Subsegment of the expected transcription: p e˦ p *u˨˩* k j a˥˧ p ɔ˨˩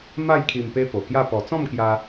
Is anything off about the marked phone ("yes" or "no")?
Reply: yes